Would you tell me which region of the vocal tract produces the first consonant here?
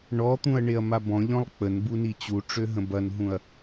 retroflex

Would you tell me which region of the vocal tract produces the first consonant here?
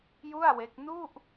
palate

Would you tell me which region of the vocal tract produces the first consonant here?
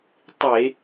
tongue tip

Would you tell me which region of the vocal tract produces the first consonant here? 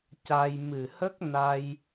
palate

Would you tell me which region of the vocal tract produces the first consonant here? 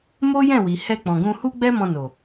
lips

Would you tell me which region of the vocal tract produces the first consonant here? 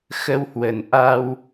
velum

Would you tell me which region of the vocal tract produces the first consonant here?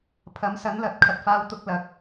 lips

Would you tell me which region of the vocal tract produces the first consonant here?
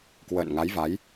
velum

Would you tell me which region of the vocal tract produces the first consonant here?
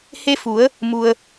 throat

